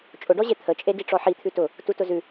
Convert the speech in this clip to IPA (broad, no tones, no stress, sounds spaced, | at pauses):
t͡ʃʼ ʊ ɖ ɔ ʑ e t̪ʰ ə t͡ʃʼ e d i ʈ͡ʂ ɔ ħ i t̪ʰ ʉ t ʊ | t u t ʊ z ʉ